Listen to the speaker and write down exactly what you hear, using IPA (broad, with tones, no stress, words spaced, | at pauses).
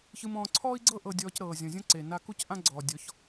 çɯ˧mɔ̃ː˧ ǀʰɔː˦i̯ɡ͡ǀɤ˦ ʔɤ˧ dʲɔː˧cɾɤː˨zʲɔ̃˨zʲɔ̃˦ ǀe˨ na˧ ku˦cʔã˦ɡ͡ǀɔː˨ dʲɔ˨˦ç